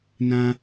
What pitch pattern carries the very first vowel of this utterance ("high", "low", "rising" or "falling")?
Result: high